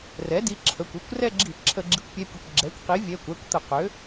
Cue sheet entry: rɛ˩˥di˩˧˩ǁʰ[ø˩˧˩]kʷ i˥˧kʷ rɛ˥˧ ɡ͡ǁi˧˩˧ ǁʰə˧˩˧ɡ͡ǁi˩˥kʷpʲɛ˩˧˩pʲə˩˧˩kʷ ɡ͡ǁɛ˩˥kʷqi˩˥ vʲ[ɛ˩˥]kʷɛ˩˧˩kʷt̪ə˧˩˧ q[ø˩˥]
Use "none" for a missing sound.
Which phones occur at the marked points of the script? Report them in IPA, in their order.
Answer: ə˩˧˩, ɛ˩˧˩, ø˩˥

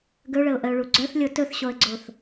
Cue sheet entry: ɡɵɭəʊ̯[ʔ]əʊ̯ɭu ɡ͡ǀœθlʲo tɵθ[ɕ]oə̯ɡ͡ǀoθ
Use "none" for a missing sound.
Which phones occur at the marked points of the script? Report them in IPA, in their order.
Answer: ʔ, ɕ

